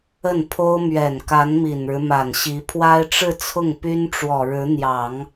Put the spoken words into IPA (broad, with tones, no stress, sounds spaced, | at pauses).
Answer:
ə˥˩ n pʰ o˥ ʊ̯ m ɥ ɛ˨˩ n k a˧˥ n m i˨˩ n ɻ ɻ̩˦ m a˨˩ n ɕ i˧˥ pʰ w a˥ ɪ̯ ʈ͡ʂ ɻ̩˥˧ t͡sʰ ʊ˥˩ ŋ p y˥ n ʈ͡ʂ w ɔ˨˩ ɻ ɻ̩˧˥ n̪ j ɑ˨˩˦ ŋ